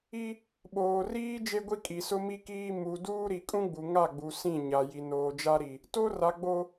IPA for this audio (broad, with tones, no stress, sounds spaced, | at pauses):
i˦ | ɓ oː˨ r iː˦ d͡ʒ e˦ ɡʷ i˦ kʼ i˨ s ʊ˦ m i˦ k iː˦ m u˨ d uː˦ ɾ i˨ kʼ ũ˦ ɡ͡b u˨ ŋ a˦˨ ɡ͡b u˨ s ĩ˦˨ ɲ a˨ j i˨ n oː˨ d͡ʒ a˦ ɾ i˨ | t o˦ r a˨ ɡ͡b o˨